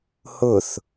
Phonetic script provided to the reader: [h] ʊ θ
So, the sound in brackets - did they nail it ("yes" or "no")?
yes